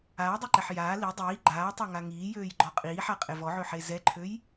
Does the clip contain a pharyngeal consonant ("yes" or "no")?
yes